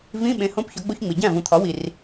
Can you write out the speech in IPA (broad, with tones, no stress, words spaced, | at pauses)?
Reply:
vĩ˧˥˧ɓẽ˩˥ hõ˧˥˧pçɒ˩˥ɡ͡bo˧˥˧çŋ͡mi˩ ɟæ̃˥˩vũ˩t̪ʰɒ˩˥ wi˩r